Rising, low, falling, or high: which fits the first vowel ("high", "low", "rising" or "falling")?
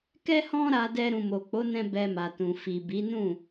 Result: high